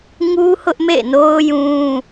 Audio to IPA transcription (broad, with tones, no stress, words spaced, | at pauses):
ŋu˦hʊ˦ʔ mḛ˦˨no˦ʊ̯ jũ˦